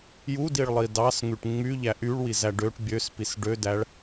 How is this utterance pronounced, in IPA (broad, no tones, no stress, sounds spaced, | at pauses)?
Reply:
j u d i ɭ lˠ i d ɑ s ŋ y ʈ ŋ͡m y ʎ æ ʔ y ɭ w i z æ ɖ ø ʈ bʲ ø s p i s ɖ ø d æ ɭ